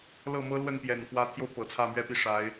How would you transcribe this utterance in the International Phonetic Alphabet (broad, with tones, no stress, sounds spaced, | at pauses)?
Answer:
l ɤ˥˩ m ɤ˥ l w ə˥˩ n p j ɛ˨˩ n p w ä˧˥ t̪ʰ j o˧ ʊ̯ p ɤ˨˩ t͡sʰ ä˥˩ m ɥ ɛ˥ p i˥˩ ʂ a˧˥ ɪ̯